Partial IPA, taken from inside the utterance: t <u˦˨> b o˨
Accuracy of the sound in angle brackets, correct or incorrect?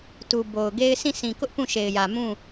incorrect